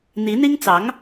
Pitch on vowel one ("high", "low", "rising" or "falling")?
rising